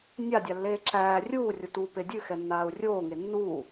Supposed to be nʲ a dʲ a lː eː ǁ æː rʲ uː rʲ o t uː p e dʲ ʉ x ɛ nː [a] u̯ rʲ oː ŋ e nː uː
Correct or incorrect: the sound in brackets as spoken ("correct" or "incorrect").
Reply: incorrect